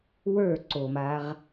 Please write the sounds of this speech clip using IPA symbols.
w ə˞ ǀ o m a ʁ

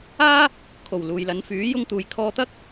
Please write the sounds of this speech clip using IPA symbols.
aː˥ | kʰ o˨˩ w l uː˨ j l ɐ˨˧ n f yː˨˥ j ʊ˧ ŋ t̪ uː˨ j kʰ ɔː˧ t̪ ɐ˥ k̚

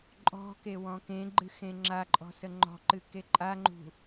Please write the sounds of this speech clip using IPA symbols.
ǃʼ ɔ̤ k e w ɔ̃ k ẽ ɡ͡ǃ ɨ x ẽ ŋ͡ǁ a ǃʼ ɔ̤ s ə ŋ͡ǃ ɔ̤ ǃ ɨ k e ǃʼ a ŋ͡ǃ ṳ

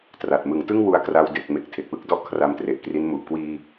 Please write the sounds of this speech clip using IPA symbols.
t r a˨˩ t̚ m ɯ˩˦ ŋ t ɯ˥˩ ŋ w u˥˩ a̯ k r a˧ w d e˨˩ k̚ m e˨˩ k̚ tʰ e˨˩ k̚ w ɯ˦˥ k̚ d ɔ˥˩ ʔ kʰ r a˧ m t r e˨˩ ʔ k r i˦˥ n m u˨˩ ʔ k w iː˧

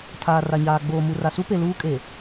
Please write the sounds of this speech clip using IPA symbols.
tʰ aː˨ r a˨ ɲ aː˨ ɡ͡b oː˨ m u˨ r a˨ s u˦ p e˨ l uː˦ kʼ e˨

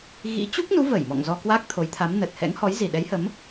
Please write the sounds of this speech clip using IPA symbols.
ɣ ḭ˧˥ t͡ɕ u˦˥ k̚ n u˨˦ v ə˧˩ j m ɔ̰˧˨ ŋ z ɔ˧ k w a˦˥ k̚ t̪ʰ o˨˦ j t̪ʰ a˨˦ m n ə˨˩ t̚ h ɛ̰˧˥ ŋ h ɔ˨˦ j z i˨˩ ɗ ɛ˨˦ j h ə˨˦ m

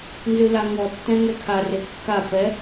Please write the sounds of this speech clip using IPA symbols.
n z ɨ l a ŋ ɔ tː ɛ̃ ŋ ɛ kʰ a r e kː a p ɛ

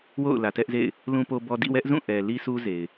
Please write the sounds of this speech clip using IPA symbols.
w o̰˦˨ ʊ̯ l ä˨ t ɛ˦ ʔ z ḛ˦˨ ɪ̯ | l ũ˦ p o˦ b ɔ˦ d ḭ˦˨ w ɛ˦ ʔ z ũ˦˨ ʔ ɛ˨ l i˦ s u˦ z e˨ ɪ̯

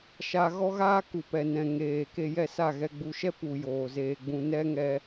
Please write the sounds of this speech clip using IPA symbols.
ʃ a˧ ɣ ɔ˦ ɣ aː˦ k u˨ p ɛ˨ n ɛ̃˨ ŋ eː˨ k e˧ j ɛ˦˨ s a˦˨ ɣ ɛ˧ ɡ͡b u˧ ʃ ɛ˦ p u˨ j oː˨ z eː˧ ɡ͡b ũ˧ n ɛ˦ ŋ ɛ˦

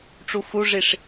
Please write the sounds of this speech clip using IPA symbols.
ʈ͡ʂ u f u ʐ i ʂ

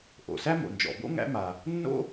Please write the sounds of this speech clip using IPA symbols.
ʔ o̰˩ s æ˥ m o̰˩ n d͡ʒ ɔ̰˩ b o̰˥ ŋ æ̰˥ m a˩ | nː o̰˥

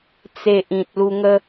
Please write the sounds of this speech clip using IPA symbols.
t͡s e˨ ʔ ĩ˨ t̚ l u˧ ŋ ə˦

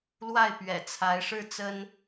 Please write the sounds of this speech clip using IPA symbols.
l w a˥˩ ɪ̯ p ɥ ɛ̰˨˩ t͡sʰ a˧˥ ɪ̯ ʂ ɻ̩˥˩ t͡s ə˥ n

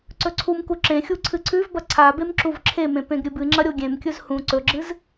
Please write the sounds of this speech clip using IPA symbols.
ǀ ɵ ǀʰ u m k u ǁ ẽ xʲ u ǀʰ ɨ ǀʰ ʉ v b ɐ ǀʰ a b e m ǁ u v ǁʰ e m ẽ p ẽ ɡ ɾʲ ɨ b ɨ ŋ͡ǁ ɐ ɾʲ o ɡʲ ẽ m kʲ ɵ z h ũ ǀ ɵ ɡ͡ǁ ɨ z

